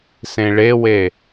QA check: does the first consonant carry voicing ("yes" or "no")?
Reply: no